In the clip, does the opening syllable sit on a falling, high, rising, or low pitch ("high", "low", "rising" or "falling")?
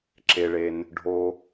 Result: low